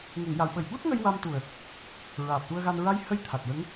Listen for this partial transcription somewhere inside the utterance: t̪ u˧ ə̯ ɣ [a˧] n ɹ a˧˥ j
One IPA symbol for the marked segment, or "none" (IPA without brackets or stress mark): a˧